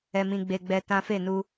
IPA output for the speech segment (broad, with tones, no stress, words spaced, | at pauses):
ɛ˧mĩ˧ɡ͡be˧ ɡ͡bɛ˧ tã˦ fe˦˨nu˧